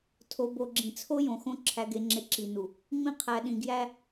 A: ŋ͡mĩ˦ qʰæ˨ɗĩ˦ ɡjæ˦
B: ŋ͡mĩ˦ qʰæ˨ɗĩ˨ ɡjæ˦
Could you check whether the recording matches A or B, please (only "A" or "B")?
B